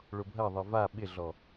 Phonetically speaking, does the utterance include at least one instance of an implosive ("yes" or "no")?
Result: yes